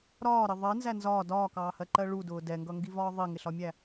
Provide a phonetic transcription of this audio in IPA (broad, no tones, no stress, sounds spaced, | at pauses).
ɾ ɒː ɾ ɪ ðˤ ɜ n z æ n z ɒː d ɒː k ɑː h ɜ ǃ ɜ ɭ u d ʊː d ɛ ŋ ɡ ʌ ŋ ɡ i v ɒː ðˤ i ŋ ɪ ɬ ɒ mʲ æ